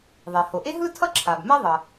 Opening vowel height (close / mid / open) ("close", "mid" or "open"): mid